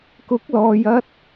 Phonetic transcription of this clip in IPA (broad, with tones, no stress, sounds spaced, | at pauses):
k ʊ˨˥ k̚ l ɔː˨ j ɐ˥ t̚